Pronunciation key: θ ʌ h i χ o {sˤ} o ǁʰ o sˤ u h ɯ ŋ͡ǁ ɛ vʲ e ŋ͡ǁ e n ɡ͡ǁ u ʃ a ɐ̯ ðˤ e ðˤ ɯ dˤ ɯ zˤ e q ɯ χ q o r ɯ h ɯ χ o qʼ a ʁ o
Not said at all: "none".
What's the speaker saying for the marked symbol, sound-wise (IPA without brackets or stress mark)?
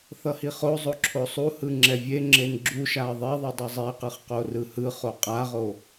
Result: zˤ